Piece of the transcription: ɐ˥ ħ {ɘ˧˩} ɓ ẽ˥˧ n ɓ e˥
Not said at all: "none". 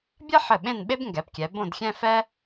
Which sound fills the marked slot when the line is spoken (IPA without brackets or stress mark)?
ɘ˧˩